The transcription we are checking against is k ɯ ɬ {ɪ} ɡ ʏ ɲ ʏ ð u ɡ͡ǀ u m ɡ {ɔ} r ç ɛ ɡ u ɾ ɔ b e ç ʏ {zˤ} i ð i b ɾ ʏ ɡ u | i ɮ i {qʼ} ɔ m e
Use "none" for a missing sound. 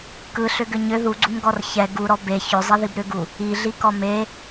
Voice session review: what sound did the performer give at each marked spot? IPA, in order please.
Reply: ʏ, ɔ, zˤ, k

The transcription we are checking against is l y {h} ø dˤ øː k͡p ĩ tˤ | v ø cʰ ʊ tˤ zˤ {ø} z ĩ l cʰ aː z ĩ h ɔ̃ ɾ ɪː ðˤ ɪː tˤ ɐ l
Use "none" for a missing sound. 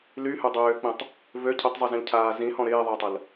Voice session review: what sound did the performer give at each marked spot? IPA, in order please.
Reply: h, y

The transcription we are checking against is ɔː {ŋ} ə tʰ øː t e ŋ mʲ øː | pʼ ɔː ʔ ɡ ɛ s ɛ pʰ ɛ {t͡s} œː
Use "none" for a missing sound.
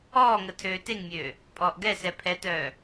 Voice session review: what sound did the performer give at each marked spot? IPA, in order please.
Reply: ŋ, t

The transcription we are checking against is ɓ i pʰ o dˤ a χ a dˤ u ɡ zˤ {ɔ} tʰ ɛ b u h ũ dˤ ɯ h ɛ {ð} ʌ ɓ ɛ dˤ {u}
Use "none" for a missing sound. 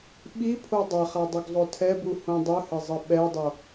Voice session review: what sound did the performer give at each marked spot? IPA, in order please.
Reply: o, zˤ, o

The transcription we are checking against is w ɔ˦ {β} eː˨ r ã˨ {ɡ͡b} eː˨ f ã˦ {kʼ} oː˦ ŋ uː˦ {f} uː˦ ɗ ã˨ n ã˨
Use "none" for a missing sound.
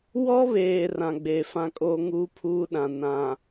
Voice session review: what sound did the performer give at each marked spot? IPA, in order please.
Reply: β, ɡ͡b, kʼ, pʰ

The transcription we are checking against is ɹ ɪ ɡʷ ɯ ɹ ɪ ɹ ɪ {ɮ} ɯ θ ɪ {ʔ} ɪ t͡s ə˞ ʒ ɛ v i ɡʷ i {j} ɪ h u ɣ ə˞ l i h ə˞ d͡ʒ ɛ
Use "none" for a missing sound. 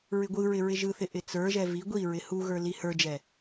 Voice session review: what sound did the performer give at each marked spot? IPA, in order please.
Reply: ʒ, ʔ, ɹ

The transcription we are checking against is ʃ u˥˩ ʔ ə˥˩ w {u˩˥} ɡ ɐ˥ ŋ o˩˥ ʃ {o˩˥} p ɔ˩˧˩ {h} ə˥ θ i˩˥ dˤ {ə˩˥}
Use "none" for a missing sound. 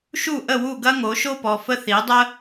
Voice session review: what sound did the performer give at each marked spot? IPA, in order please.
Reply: u˥˩, o˥, f, ə˥

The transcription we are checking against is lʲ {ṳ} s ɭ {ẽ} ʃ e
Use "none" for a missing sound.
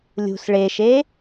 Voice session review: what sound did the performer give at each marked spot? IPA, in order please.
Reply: ṳ, e

